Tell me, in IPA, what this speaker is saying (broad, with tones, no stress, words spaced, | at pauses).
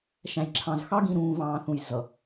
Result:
ʃæ̃˨jǁʰɑ̃˨z xɑ˦ɡĩ˨ ɾũː˨vɑ̃ː˨θũ˨j zʌ˨